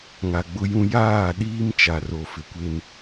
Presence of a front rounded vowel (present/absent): absent